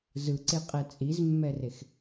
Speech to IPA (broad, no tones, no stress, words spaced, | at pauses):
zɯǀeqʼɛ t͡sʼizmːɛrex